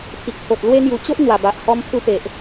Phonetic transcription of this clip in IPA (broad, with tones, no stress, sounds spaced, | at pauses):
t̪ʰ i˨ k̚ pʰ o˨ t̚ l w e˧ ŋ j u˨˩ t͡ɕ o˦ ʔ n̪ w a˨˩ b a˨ ʔ h ɔ˧ m pʰ u˧ p e˨ ʔ